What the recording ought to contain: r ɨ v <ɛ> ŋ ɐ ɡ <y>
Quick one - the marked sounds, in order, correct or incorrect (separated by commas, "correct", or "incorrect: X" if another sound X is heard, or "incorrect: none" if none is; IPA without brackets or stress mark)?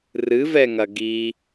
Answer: correct, incorrect: i